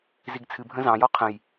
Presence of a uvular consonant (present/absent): present